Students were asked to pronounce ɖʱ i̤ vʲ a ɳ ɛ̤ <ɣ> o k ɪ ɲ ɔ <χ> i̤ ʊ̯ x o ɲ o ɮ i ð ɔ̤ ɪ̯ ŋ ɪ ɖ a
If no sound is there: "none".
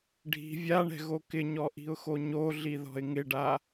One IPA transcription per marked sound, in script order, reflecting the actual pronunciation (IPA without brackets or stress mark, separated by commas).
ɣ, ʔ